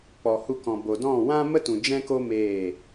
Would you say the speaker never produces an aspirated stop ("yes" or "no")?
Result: yes